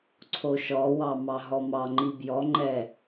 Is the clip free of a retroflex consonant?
yes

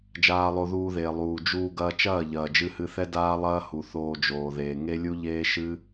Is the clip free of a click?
yes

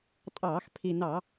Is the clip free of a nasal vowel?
yes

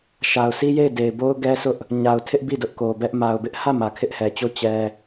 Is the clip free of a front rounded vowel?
yes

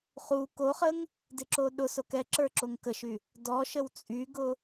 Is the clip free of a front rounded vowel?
no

